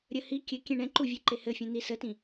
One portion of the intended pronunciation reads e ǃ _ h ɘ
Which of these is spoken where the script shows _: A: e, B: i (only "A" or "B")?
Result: A